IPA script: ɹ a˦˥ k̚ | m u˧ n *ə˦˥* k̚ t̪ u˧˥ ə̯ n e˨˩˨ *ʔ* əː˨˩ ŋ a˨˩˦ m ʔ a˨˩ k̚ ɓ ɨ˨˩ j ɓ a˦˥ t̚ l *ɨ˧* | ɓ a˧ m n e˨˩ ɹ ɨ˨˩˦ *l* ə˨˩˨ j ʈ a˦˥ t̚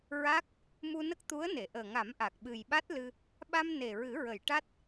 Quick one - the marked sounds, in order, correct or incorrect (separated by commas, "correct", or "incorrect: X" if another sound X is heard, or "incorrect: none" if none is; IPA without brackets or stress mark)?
correct, correct, correct, incorrect: ɹ